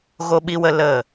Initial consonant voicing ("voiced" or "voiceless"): voiced